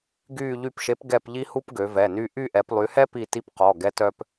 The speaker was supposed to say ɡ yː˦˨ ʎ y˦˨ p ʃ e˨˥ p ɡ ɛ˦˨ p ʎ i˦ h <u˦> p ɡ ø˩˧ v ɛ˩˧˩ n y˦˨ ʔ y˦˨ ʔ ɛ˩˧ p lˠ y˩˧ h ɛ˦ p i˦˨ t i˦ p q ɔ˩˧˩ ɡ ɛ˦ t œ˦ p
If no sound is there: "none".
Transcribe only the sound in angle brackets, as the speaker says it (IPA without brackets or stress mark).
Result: u˦